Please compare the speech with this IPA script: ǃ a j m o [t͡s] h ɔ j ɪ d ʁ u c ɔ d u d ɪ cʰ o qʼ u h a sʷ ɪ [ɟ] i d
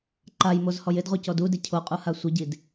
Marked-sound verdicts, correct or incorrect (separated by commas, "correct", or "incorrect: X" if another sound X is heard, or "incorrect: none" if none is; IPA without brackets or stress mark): incorrect: z, correct